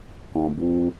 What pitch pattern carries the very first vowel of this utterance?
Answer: low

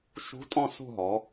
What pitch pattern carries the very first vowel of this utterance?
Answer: rising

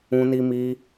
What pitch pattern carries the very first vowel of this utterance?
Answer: high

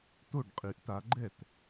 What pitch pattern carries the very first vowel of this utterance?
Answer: falling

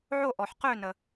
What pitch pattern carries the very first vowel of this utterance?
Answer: falling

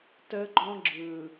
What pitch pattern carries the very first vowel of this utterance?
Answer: high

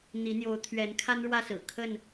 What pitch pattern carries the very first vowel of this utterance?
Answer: rising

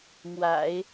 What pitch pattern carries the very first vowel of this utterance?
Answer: low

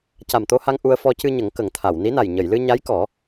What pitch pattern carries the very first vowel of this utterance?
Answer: low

